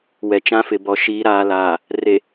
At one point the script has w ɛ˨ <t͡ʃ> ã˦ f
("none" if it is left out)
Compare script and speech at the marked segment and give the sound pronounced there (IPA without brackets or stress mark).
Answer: t͡ʃ